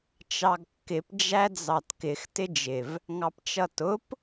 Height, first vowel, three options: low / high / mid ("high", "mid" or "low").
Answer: low